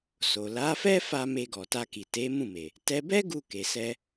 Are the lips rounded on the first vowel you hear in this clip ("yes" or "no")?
yes